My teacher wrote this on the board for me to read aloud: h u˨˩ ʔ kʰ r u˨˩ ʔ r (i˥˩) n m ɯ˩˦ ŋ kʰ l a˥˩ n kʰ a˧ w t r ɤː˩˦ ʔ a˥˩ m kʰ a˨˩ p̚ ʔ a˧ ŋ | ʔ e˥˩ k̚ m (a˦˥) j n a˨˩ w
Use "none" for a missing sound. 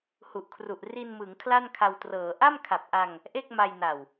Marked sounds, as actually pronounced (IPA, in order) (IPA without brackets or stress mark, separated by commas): i˧, a˧